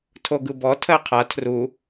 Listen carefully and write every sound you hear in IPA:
tʰ o ɡ ɯ b ɔ tʰ ɜ qʰ a tʰ r u

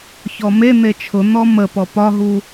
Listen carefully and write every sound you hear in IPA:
ç ɔ m e n̪ e t͡ʃʰ ʊ n̪ ɔ m ə p ɔ p ɒ ɦ u

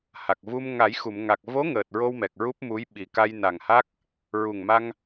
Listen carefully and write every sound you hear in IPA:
h a˨˩ k̚ v u˧ m ŋ a˨˩˦ j x u˨˩˨ m ŋ a˨˩ k̚ v o˧˥ ŋ əː˨˩ t̚ ɹ o˧ w m ɛ˨˩ k̚ ɹ u˦˥ p̚ m u˧˥ j ɓ i˨˩ k a˧ j n a˨˩ ŋ h a˦˥ k̚ | ɹ u˨˩ ŋ m a˧ ŋ

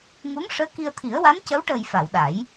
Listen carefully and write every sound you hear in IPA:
ŋ u˧˥ ŋ ʂ əː˧˥ k i˧ ə̯ t̪ʰ i˨˩˦ ə̯ w a˧˥ n c ə˧˥ w ʈ əː˨˩ j f a˨˩˨ w ɗ a˨˩˦ j

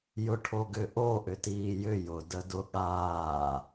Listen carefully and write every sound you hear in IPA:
j ʊ ʈʰ o ɡ ʏ ʔ o ʔ ʏ t iː j ʏ j ʊ d ə d ʊ ɠ aː

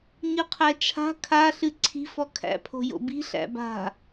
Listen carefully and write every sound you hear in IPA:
ɲ ɨ qʰ æ t͡ʃʰ a̤ kʰ a ɬ ɨ ǀʰ i̤ f ɔ kʰ æ̰ pʰ o̤ j o̰ b i̤ ɬ æ̰ b a̤

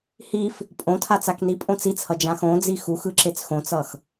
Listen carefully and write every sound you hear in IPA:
h i f | pʼ õ tʰ a t͡s a k n i pʼ õ t͡s i t͡s h ʌ d͡ʒ ã x õ d͡z i x u x ɯ ǁ e t͡s x õ t͡s ʌ x

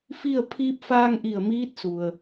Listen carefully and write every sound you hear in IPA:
f i˥˨ ə̯ pʰ iː˧ p̚ f aː˧ ŋ ʔ i˧˩ ə̯ m iː˧˥ t̚ s u˩ ə̯

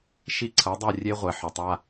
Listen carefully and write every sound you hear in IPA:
ʃ i˦ ǀʰ ɐ˨˦ dˤ œ˦˨ rʲ e˦ ʁʷ ɛ˨ ħ ʏ˨ tˤ a˦

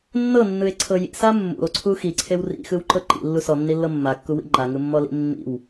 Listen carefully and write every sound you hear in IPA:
nː ɤ nː ɯ e̯ ǀʰ ɤ j ḭ s a mː ṵ o̯ ǀʰ u x i ǀʰ e w r ḭ x ɯ w ǃ ɤ ǃ ḭ lː u s ɔ nː i lː ɤ mː a kː u w ḭ ŋ͡ǃ a ŋ ɯ mː ɔ l ḭ mː ḭ w

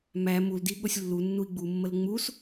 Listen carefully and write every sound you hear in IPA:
m æ m u l d i ɠ o sʲ lː u nː u i̯ ɡ͡b u mː ə l ŋ͡m u s

